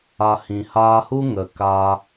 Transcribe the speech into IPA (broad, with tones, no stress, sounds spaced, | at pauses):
a˧ h ĩ˨ h aː˧ h u˦ ŋ ə˨ k aː˧